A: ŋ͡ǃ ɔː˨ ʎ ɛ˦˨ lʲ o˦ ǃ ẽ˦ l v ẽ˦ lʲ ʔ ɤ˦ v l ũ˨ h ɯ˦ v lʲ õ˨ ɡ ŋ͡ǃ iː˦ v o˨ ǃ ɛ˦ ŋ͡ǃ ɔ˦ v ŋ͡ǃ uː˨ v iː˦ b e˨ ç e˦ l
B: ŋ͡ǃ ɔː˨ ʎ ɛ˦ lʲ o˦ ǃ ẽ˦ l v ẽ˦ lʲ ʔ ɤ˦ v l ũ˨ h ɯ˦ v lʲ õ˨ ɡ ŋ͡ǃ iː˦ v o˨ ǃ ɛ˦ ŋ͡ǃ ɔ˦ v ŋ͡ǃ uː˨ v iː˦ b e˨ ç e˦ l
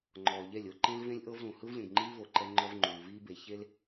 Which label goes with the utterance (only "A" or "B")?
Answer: A